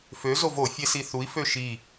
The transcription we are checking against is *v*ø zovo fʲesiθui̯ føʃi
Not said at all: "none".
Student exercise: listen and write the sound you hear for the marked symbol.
f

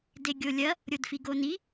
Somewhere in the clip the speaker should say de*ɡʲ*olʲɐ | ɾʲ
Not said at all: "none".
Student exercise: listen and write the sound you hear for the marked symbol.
ɡʲ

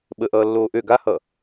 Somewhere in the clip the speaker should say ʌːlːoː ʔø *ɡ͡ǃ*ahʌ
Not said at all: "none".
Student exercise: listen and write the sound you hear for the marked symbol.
ɡ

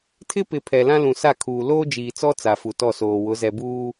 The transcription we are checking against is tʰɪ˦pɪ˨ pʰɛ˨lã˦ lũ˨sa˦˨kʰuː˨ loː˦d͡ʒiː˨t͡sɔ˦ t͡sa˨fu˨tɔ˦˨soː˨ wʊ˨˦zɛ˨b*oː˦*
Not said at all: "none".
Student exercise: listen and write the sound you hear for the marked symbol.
uː˦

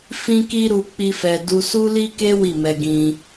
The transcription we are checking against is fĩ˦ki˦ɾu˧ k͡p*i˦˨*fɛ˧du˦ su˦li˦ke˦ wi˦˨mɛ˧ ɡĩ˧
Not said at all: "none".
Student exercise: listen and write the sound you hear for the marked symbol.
i˦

